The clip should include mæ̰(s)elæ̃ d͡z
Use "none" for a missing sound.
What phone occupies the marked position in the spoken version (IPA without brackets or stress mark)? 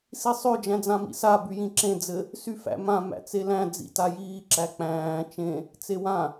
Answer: t͡s